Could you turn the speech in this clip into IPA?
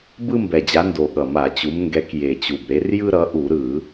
b ɯ˦ m b ɛ˨˩ d͡ʑ a˨˦ n d o˨˩ ɠ ʌ˨˩ m a˧˩˧ t͡ɕ u˨˦ m ŋ ɡ ɛ˨˦ k j e˨˩ t͡ɕ u˨˩ b ɾ e˨˦ r j ɯ˦ ɾ ʌ˨˦ ʔ u˧˩˧ ɾ ɯ˧˩˧

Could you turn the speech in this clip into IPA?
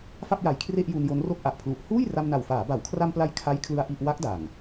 f a˥˩ p̚ j a˨˩ j kʰ r e˥˩ ʔ j u˧ n j o˦˥ n r o˥˩ k̚ ʔ a˨˩ ʔ pʰ l u˨˩ ʔ h uː˥˩ j r a˧ m n a˨˩ w f aː˩˦ b a˩˦ w kʰ r a˧ m p l a˧ j kʰ a˦˥ j kʰ l ɯ˧ a̯ ʔ i˥˩ ʔ w a˦˥ k̚ d a˨˩ ŋ

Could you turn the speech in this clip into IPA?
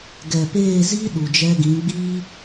ɡ ɛ˨ p eː˦˨ z i˦ ɗ u˨ d͡ʒ ɛ˧ ɡ ĩ˨˦ ɡ͡b iː˦

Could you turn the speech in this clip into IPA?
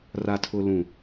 r a˨ tʰ ʊ˨ l ũ˨

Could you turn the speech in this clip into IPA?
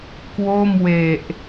k w o˥˩ m w e˨˩ ʔ

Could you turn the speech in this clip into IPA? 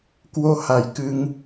k w o˧ h a˨˩ j k ɨ˧ ŋ

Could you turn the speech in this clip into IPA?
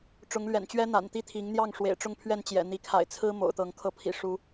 ʈ͡ʂ ʊ˨˦ ŋ l ɥ ɛ̰˨˩ n t͡ɕ ɥ ɛ˦ n̪ a̰˨˩ n t̪ i˦ t̪ʰ i˨˦ ŋ n̪ j ɑ˥˨ ŋ ʂ w ḛ˨˩ ɪ̯ ʈ͡ʂ ʊ˥˨ ŋ pʰ ɥ ɛ˥˨ n t͡ɕ j ɛ̰˨˩ n̪ i˨˦ kʰ a̰˨˩ ɪ̯ t͡sʰ ɹ̩˦ m o̰˨˩ ʊ̯ t̪ ɤ˨˦ ŋ kʰ ɤ˨˦ pʰ ḭ˨˩ ʂ u˨˦

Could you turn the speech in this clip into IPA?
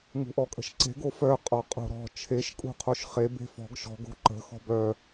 ŋ ṳ ʔ ɔ kʼ ə̤ ʃ ǀ e̤ ɡ o f œ qʼ ɔ qʼ o̤ ɾ ɔ̤ t͡ʃʰ e ʃ kʼ ṳ qʰ o ʃ χ e b e̤ f ɔ̤ ɡ ʃ ɔ̤ ɡ o̤ ǃ ə̤ x ɔ̤ b œ

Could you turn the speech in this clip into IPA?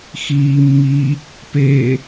x iː mː i | p e

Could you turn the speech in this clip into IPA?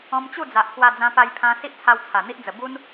ɔ̃˧ m t͡ɕ u˥˧ d͡z a˨ ʔ k w a˧ d͡z ã˧ p a˧ j pʰ ã˧ s i˦ ʔ t͡sʰ a˧ w t͡sʰ a˨˩ n̪ i˦ ʔ d͡z ə˨˩ b u˦ n

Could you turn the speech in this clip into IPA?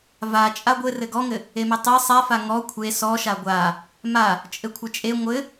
v a t͡ʃʼ a ɡʷ ɘ r ɘ ɡ ɔ ŋ ɘ | e m ɘ tˤ e sˤ a f a ŋ ɔ kʷʰ e s ɔ ʃ a ɡʷ a | m a | t͡ʃʼ ɘ kʷʰ ɘ t͡ʃʼ e ŋʷ ɘ

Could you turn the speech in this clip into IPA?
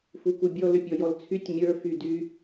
f u k u bʲ ɔ l ʏ pʲ ɔ j ɔ l t͡sʰ y tʲ mʲ ə˞ f y d y

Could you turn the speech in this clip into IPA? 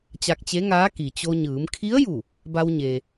t͡ɕ a˧ k̚ t͡ɕ e˧˥ ŋ aː˧˥ k i˩ t͡ɕ o˧ ɲ ɯː˩˧ m kʰ i˧˥ ə̯ j u˧˩ | b a˧ w ɲ e˩

